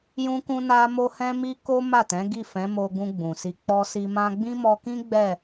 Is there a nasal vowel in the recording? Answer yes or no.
yes